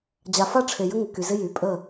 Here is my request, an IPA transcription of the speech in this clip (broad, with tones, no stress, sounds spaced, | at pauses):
d͡ʑ a˨ f a˦ ʈ͡ʂʰ e˨ j ə˦ ŋ ə˨ k y˨ z ɪ˦ j y˨˦ pʼ ə˦˨